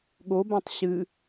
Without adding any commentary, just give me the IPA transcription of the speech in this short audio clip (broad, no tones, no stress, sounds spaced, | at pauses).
ɠ o b ã tˤ ɕ ɨ